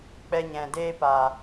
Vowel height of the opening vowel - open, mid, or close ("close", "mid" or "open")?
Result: mid